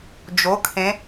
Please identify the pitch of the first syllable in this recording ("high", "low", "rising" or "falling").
rising